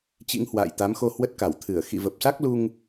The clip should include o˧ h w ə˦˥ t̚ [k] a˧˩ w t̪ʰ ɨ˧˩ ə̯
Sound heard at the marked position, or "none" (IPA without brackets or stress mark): k